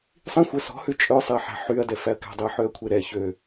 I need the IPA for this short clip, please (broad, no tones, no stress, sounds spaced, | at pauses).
sˤ ĩ xʷ œ s ɔ̤ h ʉ t͡ʃʼ œ sˤ ɛ ħ æ̤ ħ y ɐ̯ d ɛ f æ ɐ̯ k æ̤ dˤ i ɐ̯ ħ ø ɐ̯ kʷʰ e ɾ ɛ ç ø